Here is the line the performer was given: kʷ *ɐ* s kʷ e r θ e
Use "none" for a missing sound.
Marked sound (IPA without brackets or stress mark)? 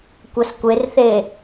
ɐ